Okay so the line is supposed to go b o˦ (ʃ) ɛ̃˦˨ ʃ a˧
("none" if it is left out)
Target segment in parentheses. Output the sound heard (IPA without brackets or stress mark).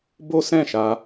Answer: s